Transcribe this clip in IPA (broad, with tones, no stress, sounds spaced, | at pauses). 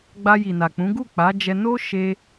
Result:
ɡ͡b a˧ j i˨ n a˨ k͡p ũ˨˦ ɡ u˦˨ k͡p a˨˦ d͡ʒ ɛ˧ n o˦ ʃ e˧